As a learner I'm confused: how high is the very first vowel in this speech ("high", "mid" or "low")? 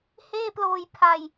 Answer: mid